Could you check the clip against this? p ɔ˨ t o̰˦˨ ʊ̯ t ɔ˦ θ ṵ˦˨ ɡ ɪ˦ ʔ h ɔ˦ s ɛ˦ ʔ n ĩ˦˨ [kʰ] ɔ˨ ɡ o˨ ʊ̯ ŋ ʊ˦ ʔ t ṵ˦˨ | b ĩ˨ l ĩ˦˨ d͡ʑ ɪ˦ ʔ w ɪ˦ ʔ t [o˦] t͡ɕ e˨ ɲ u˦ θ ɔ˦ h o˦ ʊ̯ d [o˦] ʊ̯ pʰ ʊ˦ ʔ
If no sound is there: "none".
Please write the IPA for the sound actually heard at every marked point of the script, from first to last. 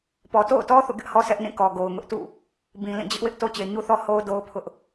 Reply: k, o˦, o˦

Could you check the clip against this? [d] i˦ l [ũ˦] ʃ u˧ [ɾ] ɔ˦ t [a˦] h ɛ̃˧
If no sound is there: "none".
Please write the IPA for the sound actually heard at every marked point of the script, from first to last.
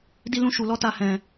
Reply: d, ũ˦, l, a˦

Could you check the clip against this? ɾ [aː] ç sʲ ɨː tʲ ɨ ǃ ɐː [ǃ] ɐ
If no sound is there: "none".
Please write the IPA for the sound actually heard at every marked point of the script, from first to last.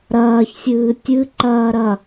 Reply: ɐː, ɾ

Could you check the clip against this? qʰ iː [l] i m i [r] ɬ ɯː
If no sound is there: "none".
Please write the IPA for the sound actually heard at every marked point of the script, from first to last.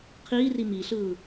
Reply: r, none

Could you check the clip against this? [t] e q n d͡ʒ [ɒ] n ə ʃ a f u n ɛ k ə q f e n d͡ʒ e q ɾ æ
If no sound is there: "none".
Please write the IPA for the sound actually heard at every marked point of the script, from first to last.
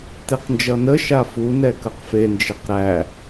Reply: t, ʌ

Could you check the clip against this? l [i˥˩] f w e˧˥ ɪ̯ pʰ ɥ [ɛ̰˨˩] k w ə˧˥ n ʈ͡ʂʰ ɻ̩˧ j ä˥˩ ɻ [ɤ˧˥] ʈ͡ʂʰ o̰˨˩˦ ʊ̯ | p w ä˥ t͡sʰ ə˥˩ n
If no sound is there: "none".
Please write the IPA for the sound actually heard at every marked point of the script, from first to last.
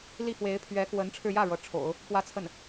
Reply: i˥˩, ɛ˧˥, ɤ˧˥

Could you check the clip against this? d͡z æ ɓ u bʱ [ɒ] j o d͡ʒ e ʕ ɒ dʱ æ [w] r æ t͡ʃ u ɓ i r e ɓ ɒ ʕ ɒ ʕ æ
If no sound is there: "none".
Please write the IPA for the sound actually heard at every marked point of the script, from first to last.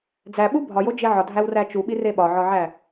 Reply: ɒ, w

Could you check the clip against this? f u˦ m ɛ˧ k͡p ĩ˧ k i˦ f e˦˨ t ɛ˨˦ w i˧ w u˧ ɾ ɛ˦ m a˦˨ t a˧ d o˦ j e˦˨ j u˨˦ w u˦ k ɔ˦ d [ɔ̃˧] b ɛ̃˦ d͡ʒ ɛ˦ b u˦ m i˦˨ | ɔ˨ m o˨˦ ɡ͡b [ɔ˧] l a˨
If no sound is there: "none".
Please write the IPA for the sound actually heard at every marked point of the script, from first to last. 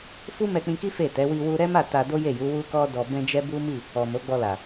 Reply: ɔ˧, ɔ˧

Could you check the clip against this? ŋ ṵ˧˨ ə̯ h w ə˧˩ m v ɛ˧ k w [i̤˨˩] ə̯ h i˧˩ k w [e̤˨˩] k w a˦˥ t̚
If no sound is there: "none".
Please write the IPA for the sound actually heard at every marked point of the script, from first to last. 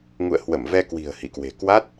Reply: i̤˨˩, e̤˨˩

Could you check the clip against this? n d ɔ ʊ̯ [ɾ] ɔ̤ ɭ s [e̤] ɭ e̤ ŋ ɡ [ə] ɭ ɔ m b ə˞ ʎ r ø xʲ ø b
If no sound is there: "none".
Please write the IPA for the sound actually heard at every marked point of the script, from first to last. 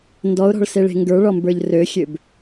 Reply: ɾ, e, ə˞

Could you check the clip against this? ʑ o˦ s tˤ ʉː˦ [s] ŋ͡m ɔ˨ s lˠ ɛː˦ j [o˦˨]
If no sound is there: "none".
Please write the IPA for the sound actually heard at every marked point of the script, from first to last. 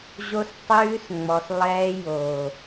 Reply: s, o˨

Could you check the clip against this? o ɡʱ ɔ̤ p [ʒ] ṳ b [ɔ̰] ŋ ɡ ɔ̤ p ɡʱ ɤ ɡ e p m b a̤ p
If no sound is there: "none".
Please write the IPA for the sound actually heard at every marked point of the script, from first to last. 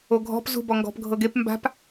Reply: z, ɔ

